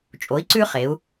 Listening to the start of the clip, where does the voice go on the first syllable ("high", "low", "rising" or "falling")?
rising